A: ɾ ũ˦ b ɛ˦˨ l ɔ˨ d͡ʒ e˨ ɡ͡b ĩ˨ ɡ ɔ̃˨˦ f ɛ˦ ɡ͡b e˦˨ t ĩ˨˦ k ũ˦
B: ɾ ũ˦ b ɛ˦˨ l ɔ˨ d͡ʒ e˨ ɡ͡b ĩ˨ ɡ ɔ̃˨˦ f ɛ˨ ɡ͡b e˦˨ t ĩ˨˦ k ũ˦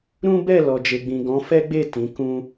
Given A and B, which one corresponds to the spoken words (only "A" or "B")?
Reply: A